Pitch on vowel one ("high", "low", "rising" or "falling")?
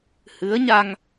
rising